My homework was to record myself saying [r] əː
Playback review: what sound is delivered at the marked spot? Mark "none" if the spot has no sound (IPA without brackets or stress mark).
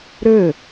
ɾ